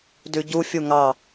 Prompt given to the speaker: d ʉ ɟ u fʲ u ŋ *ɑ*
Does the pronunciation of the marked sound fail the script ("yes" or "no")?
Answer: no